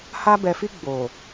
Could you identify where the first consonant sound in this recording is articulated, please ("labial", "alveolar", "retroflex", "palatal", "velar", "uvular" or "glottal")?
glottal